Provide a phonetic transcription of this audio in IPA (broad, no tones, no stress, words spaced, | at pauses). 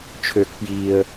t͡ʃʰøk pjiːə̯